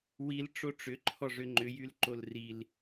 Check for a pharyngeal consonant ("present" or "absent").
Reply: absent